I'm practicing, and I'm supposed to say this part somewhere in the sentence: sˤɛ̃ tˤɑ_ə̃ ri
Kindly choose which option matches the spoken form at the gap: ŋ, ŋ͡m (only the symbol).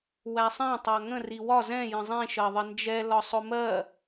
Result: ŋ